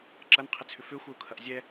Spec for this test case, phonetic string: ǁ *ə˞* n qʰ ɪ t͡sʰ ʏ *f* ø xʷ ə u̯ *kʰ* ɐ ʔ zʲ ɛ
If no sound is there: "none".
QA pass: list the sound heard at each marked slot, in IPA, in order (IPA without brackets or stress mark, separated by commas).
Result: ɐ, f, kʰ